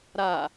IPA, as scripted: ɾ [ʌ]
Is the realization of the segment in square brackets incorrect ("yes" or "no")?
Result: yes